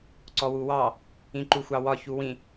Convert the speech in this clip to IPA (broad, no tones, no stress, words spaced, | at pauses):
ǀɔwuwɑ | ĩǃuxʷɑwɒ çuwĩ